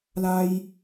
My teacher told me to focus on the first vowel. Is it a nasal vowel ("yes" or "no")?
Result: no